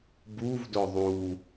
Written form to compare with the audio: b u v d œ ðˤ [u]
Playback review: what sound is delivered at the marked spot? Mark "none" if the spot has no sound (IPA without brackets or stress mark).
u